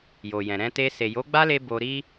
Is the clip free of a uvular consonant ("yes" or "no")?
yes